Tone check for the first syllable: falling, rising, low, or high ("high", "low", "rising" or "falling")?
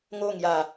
falling